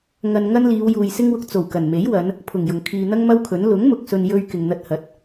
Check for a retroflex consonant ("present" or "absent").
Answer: absent